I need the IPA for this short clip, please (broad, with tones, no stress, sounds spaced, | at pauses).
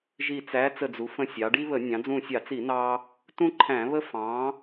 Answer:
ʒ i˧˩ t͡s æ˨˥ t͡s ə˧˩ d͡z u˩˧ f ə̃˧˩ sʲ ɑ˩˧ ɖ i˦ β ə˧˩˧ nʲ ɑ̃˩˧ d͡z ũ˧˩ sʲ ɑ˧˩˧ t͡s i˧˩˧ n ɑ˦ | t ũ˦ ǃʰ æ̃˧˩˧ β ə˦ f ɑ̃˨˥